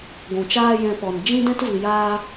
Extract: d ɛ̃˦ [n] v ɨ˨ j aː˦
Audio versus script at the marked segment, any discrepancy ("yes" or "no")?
yes